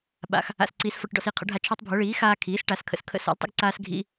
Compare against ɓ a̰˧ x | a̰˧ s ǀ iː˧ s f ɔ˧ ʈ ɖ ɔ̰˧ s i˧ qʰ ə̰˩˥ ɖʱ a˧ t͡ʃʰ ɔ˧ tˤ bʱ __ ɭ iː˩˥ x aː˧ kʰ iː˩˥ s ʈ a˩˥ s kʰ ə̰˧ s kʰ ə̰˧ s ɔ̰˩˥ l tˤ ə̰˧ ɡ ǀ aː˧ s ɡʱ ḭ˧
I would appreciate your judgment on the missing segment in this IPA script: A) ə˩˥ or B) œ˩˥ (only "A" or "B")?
B